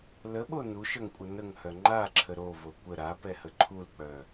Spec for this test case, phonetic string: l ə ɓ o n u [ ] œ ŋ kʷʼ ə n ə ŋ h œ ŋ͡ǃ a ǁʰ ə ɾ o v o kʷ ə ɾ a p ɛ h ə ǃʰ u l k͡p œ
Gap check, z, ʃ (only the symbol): ʃ